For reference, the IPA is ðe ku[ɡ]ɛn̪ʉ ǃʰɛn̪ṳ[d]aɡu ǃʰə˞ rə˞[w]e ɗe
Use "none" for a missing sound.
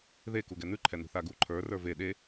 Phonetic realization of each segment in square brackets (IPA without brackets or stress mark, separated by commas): ɡ, θ, v